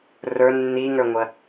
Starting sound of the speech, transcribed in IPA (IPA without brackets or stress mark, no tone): r